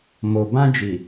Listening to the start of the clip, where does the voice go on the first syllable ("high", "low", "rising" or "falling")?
low